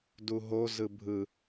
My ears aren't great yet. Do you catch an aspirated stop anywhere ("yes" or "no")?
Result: no